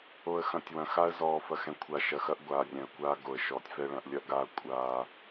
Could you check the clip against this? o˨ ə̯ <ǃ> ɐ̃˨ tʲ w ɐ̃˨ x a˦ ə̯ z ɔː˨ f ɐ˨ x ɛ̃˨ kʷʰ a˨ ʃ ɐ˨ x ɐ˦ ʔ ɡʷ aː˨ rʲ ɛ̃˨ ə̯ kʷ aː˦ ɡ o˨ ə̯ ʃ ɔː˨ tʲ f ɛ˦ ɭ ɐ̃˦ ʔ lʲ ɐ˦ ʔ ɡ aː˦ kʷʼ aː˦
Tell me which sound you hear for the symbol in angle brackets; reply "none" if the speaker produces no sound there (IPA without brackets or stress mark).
x